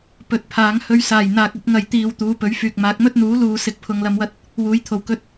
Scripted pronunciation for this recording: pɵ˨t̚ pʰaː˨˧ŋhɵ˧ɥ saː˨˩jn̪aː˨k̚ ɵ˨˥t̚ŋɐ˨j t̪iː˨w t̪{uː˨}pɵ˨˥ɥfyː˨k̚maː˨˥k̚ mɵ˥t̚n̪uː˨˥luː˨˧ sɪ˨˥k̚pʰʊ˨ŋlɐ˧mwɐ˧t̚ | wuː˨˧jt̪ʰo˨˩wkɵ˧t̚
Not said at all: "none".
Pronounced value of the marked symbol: uː˨˧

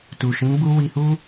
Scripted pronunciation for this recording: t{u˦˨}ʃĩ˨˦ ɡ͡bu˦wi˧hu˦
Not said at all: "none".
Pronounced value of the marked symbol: u˨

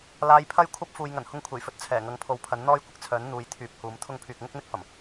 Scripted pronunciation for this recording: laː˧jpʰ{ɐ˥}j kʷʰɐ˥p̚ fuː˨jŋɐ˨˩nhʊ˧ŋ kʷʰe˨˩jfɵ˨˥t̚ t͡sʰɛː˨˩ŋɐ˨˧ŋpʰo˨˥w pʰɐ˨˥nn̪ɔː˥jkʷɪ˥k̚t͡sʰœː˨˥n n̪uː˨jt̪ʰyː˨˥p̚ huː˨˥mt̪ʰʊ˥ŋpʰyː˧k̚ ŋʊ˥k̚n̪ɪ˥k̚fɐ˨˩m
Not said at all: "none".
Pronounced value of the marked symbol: ɐ˥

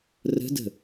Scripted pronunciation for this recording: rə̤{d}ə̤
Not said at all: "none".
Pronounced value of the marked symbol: d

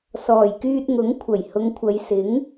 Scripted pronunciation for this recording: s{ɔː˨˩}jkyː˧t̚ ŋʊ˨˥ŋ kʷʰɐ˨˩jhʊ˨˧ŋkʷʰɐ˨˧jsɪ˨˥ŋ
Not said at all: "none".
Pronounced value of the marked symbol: ɔː˨˩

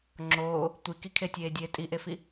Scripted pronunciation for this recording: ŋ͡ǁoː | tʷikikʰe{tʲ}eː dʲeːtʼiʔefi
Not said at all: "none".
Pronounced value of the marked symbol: tʲ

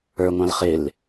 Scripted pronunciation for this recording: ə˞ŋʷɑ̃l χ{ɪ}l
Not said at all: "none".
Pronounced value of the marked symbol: ɪ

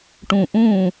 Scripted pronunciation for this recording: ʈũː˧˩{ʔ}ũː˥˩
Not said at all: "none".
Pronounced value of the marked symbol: ʔ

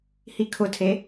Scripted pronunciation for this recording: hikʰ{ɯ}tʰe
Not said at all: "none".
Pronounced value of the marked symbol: ʊ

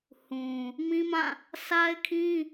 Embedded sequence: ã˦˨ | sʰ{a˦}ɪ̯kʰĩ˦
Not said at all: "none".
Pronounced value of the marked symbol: a˦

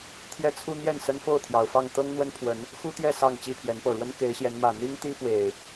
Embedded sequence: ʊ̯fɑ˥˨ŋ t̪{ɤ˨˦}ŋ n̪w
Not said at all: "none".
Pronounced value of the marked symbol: ɤ˦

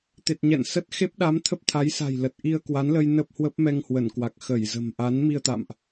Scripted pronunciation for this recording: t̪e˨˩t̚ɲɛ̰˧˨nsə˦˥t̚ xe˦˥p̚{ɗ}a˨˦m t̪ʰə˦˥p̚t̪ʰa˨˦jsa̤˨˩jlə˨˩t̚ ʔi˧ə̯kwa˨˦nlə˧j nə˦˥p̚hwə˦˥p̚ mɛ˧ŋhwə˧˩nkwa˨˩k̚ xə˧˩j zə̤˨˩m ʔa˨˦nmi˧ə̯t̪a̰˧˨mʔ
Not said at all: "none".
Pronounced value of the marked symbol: ɗ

